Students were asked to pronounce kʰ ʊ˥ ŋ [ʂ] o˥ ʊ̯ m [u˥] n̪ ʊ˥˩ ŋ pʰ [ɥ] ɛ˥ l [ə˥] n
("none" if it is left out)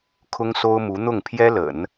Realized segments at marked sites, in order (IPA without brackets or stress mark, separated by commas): s, u˧˥, j, ə̰˨˩˦